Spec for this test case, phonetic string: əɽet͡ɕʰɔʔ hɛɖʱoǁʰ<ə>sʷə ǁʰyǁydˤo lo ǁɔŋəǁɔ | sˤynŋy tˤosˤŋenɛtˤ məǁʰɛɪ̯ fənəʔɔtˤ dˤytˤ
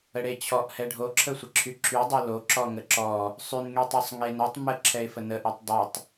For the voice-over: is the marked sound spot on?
yes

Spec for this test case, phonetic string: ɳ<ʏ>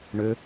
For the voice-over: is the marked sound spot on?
yes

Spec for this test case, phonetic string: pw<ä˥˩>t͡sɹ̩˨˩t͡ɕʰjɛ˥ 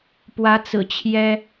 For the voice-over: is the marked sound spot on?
no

